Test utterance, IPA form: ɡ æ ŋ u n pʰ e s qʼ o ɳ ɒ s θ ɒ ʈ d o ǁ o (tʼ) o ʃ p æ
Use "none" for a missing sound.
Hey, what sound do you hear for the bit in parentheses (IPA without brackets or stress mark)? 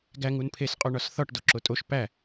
tʼ